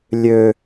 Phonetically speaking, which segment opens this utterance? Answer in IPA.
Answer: lʲ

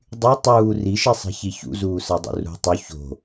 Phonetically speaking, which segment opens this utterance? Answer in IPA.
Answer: dˤ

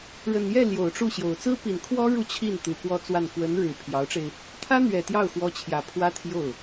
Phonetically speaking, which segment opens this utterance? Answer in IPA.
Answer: ɻ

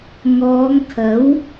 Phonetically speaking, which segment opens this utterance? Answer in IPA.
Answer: ŋ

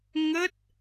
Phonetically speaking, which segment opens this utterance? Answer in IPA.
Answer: ŋ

